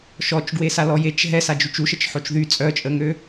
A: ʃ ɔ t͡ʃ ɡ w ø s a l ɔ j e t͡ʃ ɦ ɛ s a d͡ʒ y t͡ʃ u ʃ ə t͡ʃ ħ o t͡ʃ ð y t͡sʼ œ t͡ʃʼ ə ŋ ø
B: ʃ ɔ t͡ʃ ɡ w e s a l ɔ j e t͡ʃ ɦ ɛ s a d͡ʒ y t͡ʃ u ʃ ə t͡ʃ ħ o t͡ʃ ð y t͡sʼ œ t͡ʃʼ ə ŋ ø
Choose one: B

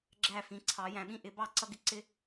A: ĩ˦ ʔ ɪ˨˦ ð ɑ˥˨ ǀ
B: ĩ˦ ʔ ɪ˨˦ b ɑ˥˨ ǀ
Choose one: B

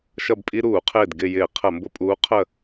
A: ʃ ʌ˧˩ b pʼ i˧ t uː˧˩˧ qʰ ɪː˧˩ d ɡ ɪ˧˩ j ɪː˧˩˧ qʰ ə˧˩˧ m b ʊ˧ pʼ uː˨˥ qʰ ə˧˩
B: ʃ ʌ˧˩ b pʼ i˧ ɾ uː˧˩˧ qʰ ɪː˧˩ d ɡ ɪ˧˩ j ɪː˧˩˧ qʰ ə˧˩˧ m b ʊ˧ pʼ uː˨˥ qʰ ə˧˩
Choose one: B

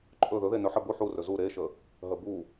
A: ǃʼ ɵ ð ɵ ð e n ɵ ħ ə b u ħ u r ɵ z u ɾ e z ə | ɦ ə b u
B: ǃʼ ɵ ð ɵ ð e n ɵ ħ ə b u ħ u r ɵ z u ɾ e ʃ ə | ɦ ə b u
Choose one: B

